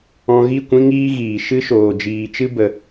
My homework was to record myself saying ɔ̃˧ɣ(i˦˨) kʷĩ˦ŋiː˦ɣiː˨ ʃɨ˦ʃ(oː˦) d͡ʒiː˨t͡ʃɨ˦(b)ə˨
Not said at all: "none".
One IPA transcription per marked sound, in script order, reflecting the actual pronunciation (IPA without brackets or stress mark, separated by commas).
i˦˨, oː˨, b